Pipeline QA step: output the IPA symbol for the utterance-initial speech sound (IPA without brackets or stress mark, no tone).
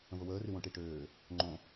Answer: ə̃